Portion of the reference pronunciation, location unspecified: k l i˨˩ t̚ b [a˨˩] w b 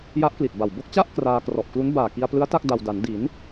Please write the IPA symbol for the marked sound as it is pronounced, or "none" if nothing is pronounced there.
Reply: a˨˩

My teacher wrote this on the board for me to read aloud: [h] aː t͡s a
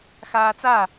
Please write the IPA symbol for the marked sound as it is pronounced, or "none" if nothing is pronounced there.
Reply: x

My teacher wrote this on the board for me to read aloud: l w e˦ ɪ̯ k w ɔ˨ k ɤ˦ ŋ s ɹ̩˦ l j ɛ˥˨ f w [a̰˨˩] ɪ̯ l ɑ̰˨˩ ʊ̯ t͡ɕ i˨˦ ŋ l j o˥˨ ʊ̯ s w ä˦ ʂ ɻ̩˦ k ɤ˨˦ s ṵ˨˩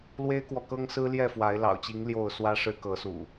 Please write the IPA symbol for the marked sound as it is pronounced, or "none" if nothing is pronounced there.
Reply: a˨˦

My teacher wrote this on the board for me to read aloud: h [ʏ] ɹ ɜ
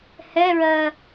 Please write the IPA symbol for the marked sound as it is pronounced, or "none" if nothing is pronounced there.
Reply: ɛ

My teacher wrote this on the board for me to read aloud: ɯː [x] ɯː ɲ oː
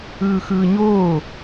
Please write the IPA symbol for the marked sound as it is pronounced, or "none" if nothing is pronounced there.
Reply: x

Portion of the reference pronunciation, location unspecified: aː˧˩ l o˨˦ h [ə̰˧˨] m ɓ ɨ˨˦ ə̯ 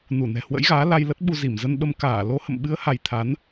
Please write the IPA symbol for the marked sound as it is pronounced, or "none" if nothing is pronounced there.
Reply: ə̰˧˨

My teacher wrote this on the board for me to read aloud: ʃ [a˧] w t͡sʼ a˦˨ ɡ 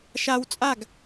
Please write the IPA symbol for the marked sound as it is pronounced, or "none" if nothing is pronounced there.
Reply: a˧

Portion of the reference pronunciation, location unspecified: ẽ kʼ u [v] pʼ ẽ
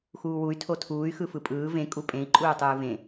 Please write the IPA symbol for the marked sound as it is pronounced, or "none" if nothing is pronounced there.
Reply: none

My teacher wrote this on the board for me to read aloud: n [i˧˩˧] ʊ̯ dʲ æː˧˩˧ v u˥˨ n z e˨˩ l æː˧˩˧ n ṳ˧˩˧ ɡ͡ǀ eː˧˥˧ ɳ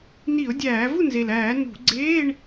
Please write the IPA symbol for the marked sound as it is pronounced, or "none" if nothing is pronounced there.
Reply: i˧˩˧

